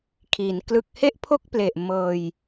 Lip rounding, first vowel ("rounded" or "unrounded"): unrounded